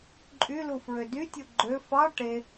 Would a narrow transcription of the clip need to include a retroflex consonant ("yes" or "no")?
yes